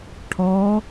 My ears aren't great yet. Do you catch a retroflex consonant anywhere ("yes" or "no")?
yes